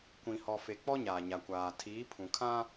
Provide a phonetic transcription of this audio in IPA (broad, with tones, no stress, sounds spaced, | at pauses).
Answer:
kʷ ĩ˨ h ɔ˨ f e˨ k͡p ɔ˦ ɲ aː˨ ɲ a˨ kʷ aː˨ tʰ iː˨˦ pʰ ũ˨ kʰ ã˦